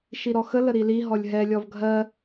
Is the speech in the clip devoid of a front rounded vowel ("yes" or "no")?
yes